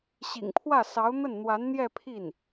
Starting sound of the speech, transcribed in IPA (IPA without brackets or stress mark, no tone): ɕ